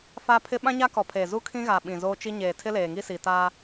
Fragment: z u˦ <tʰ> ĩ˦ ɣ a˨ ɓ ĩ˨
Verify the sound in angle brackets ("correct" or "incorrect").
incorrect